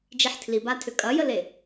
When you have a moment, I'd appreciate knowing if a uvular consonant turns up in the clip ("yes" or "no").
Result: no